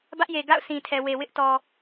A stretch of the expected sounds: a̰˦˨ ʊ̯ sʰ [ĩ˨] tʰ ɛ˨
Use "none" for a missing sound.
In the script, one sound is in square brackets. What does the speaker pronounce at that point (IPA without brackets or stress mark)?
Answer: ĩ˨